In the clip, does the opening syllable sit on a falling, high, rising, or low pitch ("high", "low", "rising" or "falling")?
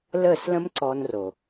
falling